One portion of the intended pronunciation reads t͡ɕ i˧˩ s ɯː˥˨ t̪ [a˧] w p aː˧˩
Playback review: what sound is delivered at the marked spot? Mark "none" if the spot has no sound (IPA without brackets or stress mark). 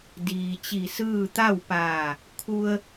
a˥˨